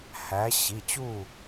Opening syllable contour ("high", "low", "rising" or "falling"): rising